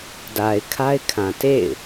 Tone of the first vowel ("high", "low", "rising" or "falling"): low